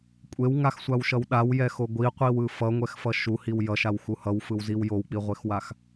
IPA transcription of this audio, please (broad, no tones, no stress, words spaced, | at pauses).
kʷʼewŋaxsʷawʃʌw ɗawjɛxo ɡʷiqʷiwɯ fʌŋʷɛxfʌ ʃuhiw jʌʃawxu hʌwfɯwziw jowk͡piʁʷexwax